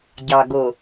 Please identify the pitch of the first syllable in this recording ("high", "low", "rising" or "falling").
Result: low